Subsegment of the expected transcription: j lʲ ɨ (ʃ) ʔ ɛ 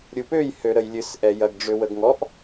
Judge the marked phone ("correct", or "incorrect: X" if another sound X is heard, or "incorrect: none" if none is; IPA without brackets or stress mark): incorrect: s